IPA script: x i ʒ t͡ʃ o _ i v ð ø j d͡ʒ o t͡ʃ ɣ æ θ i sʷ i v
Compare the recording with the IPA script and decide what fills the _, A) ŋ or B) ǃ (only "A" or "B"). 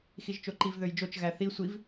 B